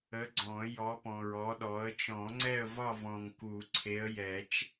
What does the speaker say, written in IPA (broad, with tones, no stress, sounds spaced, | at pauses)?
ə˨˦ ɡ͡ǀ ɔ̃˨˩˦ j ɔ˨˦ p ɔ̃˨ ɹ ɔ˨˦ ɗ ɔ˨˦ ə̯ t͡ʃ ɔ̃˨˩˦ ŋ͡ǀ ɛ˦˨ ə̯ v ɒ˦˨ v ɔ̃˨ ŋ k u˨˩˦ ǀʰ e˨˦ ə̯ j ɛ˨˩˦ t͡ʃ